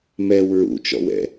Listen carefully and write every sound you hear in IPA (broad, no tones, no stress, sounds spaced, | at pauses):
m ɛ w ɹ ṵ t͡ʃ ɔ̰ w ɛ̰